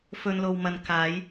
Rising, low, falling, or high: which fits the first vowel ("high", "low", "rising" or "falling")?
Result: low